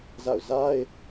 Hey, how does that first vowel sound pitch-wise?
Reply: falling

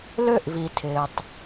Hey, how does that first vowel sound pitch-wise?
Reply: falling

